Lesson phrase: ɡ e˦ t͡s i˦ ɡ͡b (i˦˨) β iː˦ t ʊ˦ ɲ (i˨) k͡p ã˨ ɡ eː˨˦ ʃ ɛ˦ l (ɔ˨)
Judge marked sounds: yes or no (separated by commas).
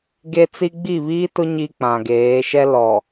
yes, no, yes